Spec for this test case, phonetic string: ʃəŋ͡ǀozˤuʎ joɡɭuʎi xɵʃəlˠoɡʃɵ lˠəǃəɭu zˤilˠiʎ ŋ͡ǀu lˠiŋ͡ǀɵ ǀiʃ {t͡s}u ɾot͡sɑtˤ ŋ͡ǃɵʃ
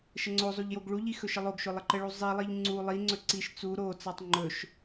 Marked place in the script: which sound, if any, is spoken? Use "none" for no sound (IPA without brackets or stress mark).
t͡s